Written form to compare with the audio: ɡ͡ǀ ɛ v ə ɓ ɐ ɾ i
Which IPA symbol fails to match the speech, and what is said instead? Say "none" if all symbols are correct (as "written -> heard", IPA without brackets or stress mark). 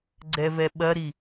ə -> ɛ